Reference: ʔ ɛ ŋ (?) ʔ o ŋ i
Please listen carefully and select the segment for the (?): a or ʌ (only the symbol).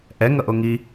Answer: ʌ